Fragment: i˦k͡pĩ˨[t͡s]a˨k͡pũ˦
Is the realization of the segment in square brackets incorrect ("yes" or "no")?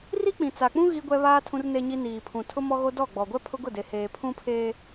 no